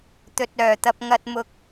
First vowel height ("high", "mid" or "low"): mid